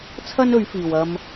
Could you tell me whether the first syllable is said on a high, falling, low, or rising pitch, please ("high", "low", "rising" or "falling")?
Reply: high